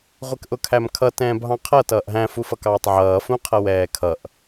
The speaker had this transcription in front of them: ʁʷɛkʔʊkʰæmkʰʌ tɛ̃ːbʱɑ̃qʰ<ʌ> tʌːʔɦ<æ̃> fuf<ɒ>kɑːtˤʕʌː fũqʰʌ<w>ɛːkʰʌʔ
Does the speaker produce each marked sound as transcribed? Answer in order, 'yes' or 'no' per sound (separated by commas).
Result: yes, yes, no, yes